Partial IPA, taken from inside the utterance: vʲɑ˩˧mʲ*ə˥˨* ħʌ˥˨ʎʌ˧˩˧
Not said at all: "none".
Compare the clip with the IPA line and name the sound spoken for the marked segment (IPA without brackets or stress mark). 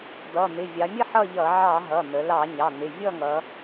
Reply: ə˥˨